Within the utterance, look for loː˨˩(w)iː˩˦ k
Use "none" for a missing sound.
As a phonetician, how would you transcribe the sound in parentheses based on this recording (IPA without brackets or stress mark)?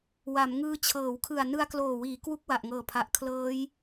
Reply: w